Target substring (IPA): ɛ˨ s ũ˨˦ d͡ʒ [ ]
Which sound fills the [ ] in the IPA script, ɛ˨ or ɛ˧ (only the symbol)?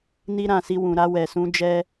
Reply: ɛ˧